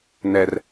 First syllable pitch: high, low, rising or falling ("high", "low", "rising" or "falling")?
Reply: low